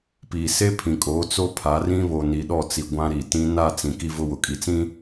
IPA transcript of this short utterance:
p iː˨ s e˦ pʰ ĩ˨ kʼ oː˨˦ t͡s o˦ pʰ a˨˦ r ĩ˦ β o˨ n i˨ ɗ ɔ˦˨ t͡s i˨ ɡʷ ã˦ ɾ i˨ t ĩ˦ n a˦˨ t͡s ĩ˨ k i˦ v ʊ˦ w ʊ˨ kʼ i˨ t͡s ĩ˦

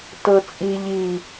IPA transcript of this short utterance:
t ɤ t͡sʼ i ʎ i

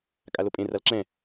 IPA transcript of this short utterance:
kʼ a l o pʼ ẽ r a l ǁ ɛ̃

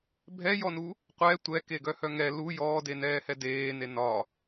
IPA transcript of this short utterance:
bʱ ɛ j ɔ n u | qʷ ɛ tʷ ɛ k e ɡ œ h œ ŋ ɛ l u j ɔː d e n ɛː h ɛ d eː n e n ɒ

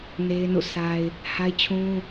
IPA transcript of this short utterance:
n e˦ ɪ̯ n ṵ˦˨ sʰ a˦ ɪ̯ | h a˦ ɪ̯ t͡ɕʰ ũ˦

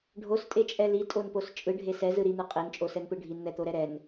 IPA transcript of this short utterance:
ɖʱ o s tʼ e t͡ʃʼ ɛ l i tʼ o n p o s t͡ʃʼ ɯ ɖʱ e s ɛ z ɯ ɾ i n̪ ɯ qʼ e n t͡ʃʼ o s ɛ n p ɯ ɖʱ i n n̪ ɛ t̪ o ɾ ɛ ɾ ɛ n

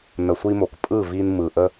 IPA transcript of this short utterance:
n ə˨ sʷ i˧ m o˨ k pʼ ɯ˦˨ v i˧ n m ɯ˨ ʔ ə˦

